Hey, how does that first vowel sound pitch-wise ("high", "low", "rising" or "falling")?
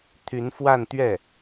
rising